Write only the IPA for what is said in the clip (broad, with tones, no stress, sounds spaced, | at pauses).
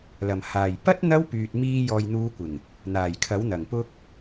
l ɐ˨˩ m h aː˨˩ j p ɐ˥ t̚ n̪ ɐ˥ w p yː˨ t̚ m iː˧ j ɔː˨ j n̪ uː˨˧ kʷ ɪ˨˩ ŋ | n̪ aː˨˩ j kʰ ɐ˨˥ w n̪ ɐ˨˩ ŋ p ʊ˧ k̚